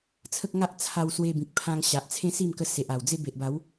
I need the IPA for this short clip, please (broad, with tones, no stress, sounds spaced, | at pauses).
t͡sʰ ə˦ k̚ ŋ a˦ ʔ t͡sʰ a˧ w s w e˧ b ĩ˨ k̚ pʰ ã˧ ŋ ɕ a˨ ʔ t͡sʰ ẽ˦ s i˥˧ m k ə˧ s e˨ ʔ a˨˩ w d͡z e˦ b e˨ ʔ b a˨˦ w